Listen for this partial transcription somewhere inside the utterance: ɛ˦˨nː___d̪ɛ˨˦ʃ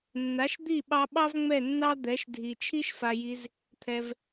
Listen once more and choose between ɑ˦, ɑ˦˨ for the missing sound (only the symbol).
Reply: ɑ˦